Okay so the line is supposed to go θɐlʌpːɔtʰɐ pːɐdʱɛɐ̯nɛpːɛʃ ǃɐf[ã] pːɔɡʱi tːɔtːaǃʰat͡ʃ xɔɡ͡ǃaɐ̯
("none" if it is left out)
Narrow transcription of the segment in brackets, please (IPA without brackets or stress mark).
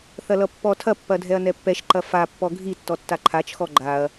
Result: a